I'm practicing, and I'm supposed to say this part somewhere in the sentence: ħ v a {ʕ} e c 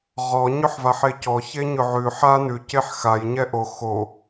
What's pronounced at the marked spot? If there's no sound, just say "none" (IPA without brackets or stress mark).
ħ